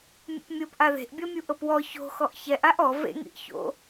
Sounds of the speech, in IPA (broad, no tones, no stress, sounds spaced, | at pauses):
mʲ o̰ p mʲ ɤ p ʔ a ð e̤ ʔ bʲ ɔ mʲ u ʔ ɤ p w ɔ ç o̤ x ɔ ʔ ç ɛ ʔ a ʔ ɔ v ḛ ŋ ḭ ʔ ç o̰